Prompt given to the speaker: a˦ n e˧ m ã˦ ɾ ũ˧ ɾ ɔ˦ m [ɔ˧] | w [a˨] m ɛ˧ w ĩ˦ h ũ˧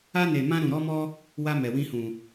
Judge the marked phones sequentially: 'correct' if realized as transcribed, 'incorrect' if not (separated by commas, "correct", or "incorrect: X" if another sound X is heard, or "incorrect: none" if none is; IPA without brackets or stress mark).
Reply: incorrect: ɔ˦, incorrect: a˦